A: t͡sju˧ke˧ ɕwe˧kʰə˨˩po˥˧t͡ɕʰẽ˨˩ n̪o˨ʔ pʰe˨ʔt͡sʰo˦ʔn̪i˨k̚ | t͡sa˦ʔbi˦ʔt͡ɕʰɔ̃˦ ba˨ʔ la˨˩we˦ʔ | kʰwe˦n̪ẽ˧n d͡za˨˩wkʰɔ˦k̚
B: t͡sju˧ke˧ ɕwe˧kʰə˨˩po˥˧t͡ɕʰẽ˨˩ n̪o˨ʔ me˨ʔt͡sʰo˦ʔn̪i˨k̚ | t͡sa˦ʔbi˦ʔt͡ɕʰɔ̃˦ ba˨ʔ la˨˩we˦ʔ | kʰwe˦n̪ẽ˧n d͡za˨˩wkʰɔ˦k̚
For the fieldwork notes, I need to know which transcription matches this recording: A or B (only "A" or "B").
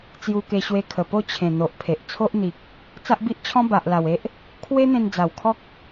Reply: A